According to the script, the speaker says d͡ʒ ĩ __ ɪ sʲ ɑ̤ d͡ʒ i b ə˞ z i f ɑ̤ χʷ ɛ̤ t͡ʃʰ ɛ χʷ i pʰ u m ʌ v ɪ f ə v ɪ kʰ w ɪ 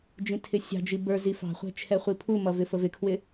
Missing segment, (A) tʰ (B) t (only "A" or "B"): A